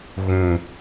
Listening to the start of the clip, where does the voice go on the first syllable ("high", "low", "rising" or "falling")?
low